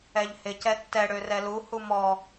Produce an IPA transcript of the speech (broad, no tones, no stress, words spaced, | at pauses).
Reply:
ɛʎhɪ cɛtːɛ ɽørɛlu humɔ